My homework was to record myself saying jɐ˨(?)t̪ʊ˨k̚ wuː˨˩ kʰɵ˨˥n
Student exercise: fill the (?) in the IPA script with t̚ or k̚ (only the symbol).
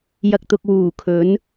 k̚